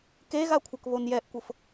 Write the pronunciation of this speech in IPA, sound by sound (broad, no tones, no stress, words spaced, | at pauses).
keɣakʷʰɤk βonjɛʔkʷɤf